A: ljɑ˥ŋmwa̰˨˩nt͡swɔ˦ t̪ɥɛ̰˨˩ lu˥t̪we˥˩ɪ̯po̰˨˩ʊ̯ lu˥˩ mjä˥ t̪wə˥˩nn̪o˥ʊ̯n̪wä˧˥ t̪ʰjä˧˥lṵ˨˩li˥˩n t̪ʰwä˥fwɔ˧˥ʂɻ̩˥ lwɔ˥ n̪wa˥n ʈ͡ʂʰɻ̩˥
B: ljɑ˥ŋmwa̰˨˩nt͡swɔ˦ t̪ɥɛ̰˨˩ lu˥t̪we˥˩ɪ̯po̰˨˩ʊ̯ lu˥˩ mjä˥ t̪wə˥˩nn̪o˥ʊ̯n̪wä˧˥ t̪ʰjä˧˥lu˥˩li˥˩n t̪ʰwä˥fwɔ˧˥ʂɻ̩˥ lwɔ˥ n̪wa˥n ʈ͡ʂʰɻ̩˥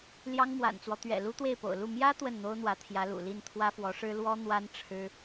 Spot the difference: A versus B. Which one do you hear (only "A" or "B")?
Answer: A